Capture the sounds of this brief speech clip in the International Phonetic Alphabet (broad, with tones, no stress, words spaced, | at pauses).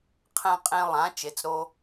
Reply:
qʰɛ̃˦qʼẽ˦ lˠã˨˥ t͡ʃe˨˥t͡sɾo˦